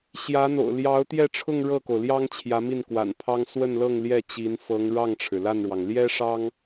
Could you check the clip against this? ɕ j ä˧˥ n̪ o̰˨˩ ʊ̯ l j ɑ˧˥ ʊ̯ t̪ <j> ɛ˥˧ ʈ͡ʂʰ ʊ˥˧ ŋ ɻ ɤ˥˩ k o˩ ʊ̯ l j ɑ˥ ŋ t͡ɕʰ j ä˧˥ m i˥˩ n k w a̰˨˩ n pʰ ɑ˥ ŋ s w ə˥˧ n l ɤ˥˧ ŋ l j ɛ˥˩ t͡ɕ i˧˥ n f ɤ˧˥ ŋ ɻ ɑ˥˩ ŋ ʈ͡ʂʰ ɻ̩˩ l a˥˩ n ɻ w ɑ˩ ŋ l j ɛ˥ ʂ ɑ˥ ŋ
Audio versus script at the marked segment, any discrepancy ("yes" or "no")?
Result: no